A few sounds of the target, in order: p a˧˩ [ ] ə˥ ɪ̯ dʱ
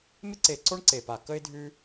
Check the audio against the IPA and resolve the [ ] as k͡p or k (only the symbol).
k